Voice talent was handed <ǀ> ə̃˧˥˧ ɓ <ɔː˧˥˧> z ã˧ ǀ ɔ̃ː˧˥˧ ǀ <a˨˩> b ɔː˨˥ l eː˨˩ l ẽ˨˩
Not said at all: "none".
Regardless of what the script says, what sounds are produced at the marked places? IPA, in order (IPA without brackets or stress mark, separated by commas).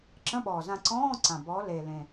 ǁ, ɔː˨˩, ã˨˩